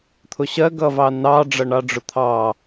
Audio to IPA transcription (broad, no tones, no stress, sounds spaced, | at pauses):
t̪ʰ ʊ ɕ ɜ ɡ ʌ v ɑ n ɑ ɖ͡ʐ ʌ ɳ ɑ ɖ͡ʐ ʊ t̪ʰ ɑ